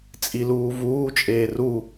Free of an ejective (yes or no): no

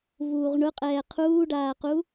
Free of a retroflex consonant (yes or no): no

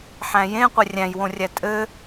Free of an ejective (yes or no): no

